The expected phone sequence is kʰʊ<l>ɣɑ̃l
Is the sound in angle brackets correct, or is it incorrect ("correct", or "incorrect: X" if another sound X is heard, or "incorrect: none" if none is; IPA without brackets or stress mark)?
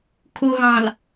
incorrect: none